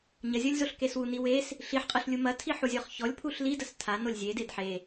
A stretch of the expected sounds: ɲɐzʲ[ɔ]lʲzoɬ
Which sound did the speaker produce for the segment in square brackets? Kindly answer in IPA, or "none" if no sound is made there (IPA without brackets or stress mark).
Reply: ɔ